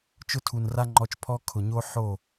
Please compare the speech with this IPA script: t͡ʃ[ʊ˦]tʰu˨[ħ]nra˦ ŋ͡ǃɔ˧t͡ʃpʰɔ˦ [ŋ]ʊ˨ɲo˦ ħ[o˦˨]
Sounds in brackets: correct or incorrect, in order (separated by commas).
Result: correct, incorrect, incorrect, correct